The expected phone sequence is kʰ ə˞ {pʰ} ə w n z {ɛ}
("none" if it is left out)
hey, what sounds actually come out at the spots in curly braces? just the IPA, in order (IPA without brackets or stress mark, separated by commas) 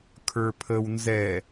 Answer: pʰ, ɛ